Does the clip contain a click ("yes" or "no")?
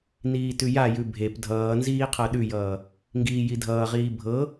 no